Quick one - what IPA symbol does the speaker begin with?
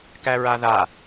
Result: k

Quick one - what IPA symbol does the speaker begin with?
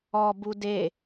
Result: ɔ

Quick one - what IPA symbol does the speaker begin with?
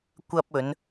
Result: kʷ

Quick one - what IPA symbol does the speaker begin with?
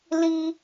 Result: l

